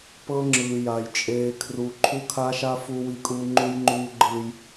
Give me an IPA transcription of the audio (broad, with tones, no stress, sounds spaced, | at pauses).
p ɤ˦ ŋ͡ǁ ɯː˨ j a˨ j t͡ʃʼ eː˨ kʰ r u˨ ǃʰ u˦ kʰ a˦ ʃ a˦ f u˦ w i˦ kʼ uː˦ ŋ͡ǃ u˦ j ŋ͡ǃ uː˦ ɡ͡ǃ ɯː˦ j